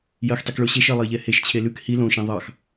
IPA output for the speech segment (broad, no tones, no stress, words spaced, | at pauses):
jɜxtˤikɭo ɕeʃɜlˠɛjʎɛ heʃt͡ɕʰe lʉk hi lõʃɛ̃ ðˤɑx